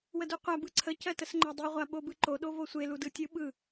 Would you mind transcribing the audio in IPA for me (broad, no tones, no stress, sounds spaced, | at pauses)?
w ə d u qʷ a b ɯ ǀʰ ə c ɜ t ə s ŋ͡ǃ ɜ dˤ i ʁʷ a ɓ o b ɯ ǃ o ɗ o v o sʷ e l u d ɯ tʲ ɯ ɓ ɯ